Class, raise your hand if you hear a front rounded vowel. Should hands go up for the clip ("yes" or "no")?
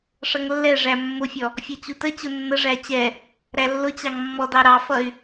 yes